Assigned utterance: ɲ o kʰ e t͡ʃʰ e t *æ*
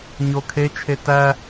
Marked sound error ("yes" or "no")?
no